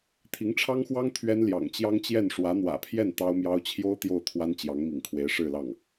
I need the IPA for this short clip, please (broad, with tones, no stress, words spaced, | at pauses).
t̪ʰi˧˥ŋʈ͡ʂʰɑ˥ŋxwɑ˥ŋ t̪ʰɥɛ˥n ljɑ̰˨˩ŋt͡ɕjɑ˥ŋt͡ɕjɛ˥˩n ʂwä˧˥n̪wä̰˨˩pʰjɛ˥˩n t̪ɑ˥ʊ̯mjɑ˥ʊ̯ t͡ɕʰjo˥ʊ̯ t̪jo˥˩ʊ̯t̪ʰwa˥n t͡ɕjɑ˧˥ŋmḭ˨˩ŋ kʰwe˧˥ɪ̯ʂɻ̩˥˧lɑ˥˩ŋ